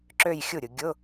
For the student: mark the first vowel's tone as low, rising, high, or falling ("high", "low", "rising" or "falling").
falling